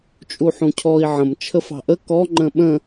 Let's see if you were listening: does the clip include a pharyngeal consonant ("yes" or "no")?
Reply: yes